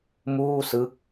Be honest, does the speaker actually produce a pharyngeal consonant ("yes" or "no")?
no